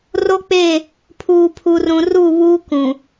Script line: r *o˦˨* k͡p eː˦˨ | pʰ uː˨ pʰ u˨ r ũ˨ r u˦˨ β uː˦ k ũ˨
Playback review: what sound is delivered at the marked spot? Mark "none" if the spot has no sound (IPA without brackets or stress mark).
o˦